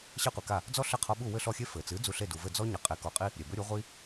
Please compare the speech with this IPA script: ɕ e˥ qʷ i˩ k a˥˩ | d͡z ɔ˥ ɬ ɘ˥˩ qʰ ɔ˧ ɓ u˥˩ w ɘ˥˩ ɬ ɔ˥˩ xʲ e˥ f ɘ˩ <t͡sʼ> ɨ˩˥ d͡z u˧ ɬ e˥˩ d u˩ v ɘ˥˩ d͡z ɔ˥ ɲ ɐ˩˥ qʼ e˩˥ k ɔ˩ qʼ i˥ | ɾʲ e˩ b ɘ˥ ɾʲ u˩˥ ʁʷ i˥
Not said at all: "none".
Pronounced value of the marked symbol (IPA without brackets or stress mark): t͡s